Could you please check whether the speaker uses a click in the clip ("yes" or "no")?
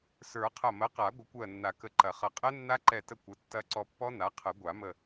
yes